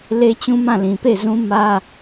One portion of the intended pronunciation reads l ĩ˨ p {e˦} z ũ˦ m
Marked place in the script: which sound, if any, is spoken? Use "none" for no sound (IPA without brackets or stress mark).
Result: e˦˨